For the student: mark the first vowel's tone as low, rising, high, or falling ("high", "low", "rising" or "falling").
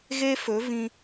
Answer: high